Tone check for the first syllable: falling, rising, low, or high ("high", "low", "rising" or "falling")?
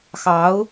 rising